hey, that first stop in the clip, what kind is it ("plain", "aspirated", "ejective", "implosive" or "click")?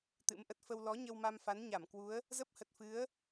plain